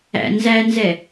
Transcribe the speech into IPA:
æ̰ n z æ n z ɛ

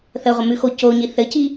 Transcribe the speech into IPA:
θ ə ʁʷ ə m ʉ x o c o ɲ i θ ɘ c i

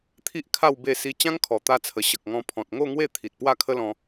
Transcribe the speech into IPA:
t̪ʰ i˦ ʔ kʰ a˥˧ w b e˥˧ s i˦ t͡ɕ ã˦ ŋ kʰ ɔ˨˩ t̪ a˧ t͡sʰ ə˨˩ ɕ ə˨ k̚ ŋ ɔ̃˧ pʰ ɔ̃˨ t̚ ŋ o˥˧ ŋ w e˥˧ t̪ʰ i˨ t̚ p w a˥˧ kʰ ə˦ l ɔ̃˧

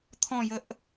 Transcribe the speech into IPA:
t̪ʰ ɔ̃ j ə ʔ

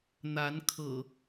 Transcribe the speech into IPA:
n̪ a˨˦ n kʰ ɤ̰˨˩

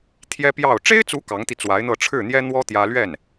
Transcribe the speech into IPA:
t̪ʰ j ɛ˥ p j ɑ˥˩ ʊ̯ ʈ͡ʂ e˥ ɪ̯ t͡s u˧˥ k ɑ˧˥ ŋ t̪ i˧ t͡s w a˧˥ ɪ̯ n̪ ɤ˥˧ ʈ͡ʂʰ ɻ̩˥˩ n̪ j ɛ˥ n̪ w ɔ˥ t̪ j ä˥ l ɥ ɛ˥˩ n

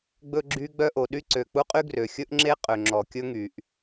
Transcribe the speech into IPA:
ɡ͡b ɵ˥ ɡ͡ǁ y˥ ɡ͡b œ˥ ʔ o˩ ɗ y˥ ǀ ø˩ k͡p u˥ qʼ y˥ ɡ r ø˩ xʲ ɵ˥ ʔ ŋ͡ǁ e˥ qʼ ø˩ ŋ͡ǁ ɔ˩ kʲ ɵ˥ ŋ y˩ ʔ

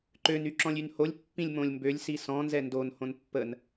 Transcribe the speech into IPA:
ǃ ø n y ǁ ɔ̃ lʲ y n h o lʲ pː ĩ lʲ m õ lʲ m b ø lʲ s i s ɔ̃ n z ɛ n d o n h õ n pː ə n

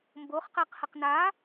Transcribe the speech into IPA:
m b o χ q ɛ q h ə q n a

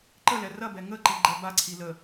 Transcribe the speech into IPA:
ǃ ə l ɛ r ɐ b ɛ ŋ ə ǃ i ɡ͡ǃ ɛ b a ǀʰ i l ə

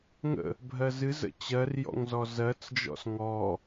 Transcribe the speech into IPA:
ŋ ə̰ | bʱ ɜ z ɨ z ə̰ t͡ɕ ɜ r j ɔ̰ ŋ z ɔ z ɜ t͡s d͡ʒ ɔ̰ s ŋ ɔ

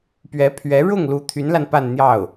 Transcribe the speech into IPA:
p ɥ ɛ˧˥ pʰ ɥ ɛ˧˥ ɻ ʊ˥˩ ŋ l u˧˥ t̪ʰ y˧˥ n l a˧ n p a˥˧ n n̪ j ɑ˥˩ ʊ̯

